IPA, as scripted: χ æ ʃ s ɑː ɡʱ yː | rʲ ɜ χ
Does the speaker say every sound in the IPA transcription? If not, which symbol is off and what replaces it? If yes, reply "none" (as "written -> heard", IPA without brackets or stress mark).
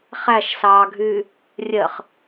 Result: none